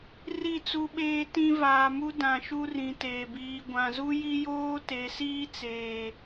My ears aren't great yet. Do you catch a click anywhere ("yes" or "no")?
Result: no